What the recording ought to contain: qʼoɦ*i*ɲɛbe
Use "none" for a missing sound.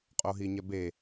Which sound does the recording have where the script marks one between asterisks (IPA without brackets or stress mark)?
i